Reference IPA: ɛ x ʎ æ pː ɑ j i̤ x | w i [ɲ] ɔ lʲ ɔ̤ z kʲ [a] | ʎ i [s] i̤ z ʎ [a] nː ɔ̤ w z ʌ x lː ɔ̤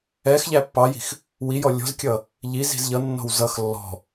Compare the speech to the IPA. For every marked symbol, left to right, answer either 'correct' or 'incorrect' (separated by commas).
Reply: incorrect, incorrect, incorrect, incorrect